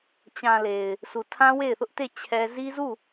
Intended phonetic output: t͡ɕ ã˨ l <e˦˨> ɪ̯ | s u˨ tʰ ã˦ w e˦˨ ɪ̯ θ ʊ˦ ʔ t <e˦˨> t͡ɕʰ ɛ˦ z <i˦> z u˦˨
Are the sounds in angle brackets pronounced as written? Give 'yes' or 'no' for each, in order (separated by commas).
no, yes, yes